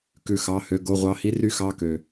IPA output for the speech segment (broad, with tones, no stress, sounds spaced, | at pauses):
k ʉ˦˨ x ɑ˧˥˧ h ø˧˥˧ ɡ o˧˥˧ ʁʷ ɑ˧˥˧ h i˥ r y˥ x ɑ˧˥˧ k ø˨